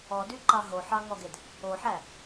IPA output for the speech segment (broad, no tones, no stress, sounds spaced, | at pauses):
ɔ d y ǃ ɑ ɦ o ħ ɑ ŋ ɔ ɡ e d | o ħ æ